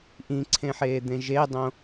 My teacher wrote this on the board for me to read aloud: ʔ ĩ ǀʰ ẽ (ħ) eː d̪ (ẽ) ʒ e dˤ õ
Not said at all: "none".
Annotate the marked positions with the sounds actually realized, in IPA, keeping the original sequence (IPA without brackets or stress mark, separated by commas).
ħ, ẽ